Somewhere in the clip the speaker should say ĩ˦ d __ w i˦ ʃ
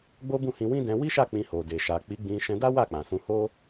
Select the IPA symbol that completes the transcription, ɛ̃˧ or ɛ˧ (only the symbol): ɛ̃˧